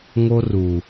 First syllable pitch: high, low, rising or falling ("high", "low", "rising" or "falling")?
high